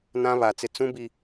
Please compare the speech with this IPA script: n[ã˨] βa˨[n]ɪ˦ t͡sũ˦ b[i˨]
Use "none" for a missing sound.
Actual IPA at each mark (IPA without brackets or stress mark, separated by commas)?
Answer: ã˦, t͡s, i˦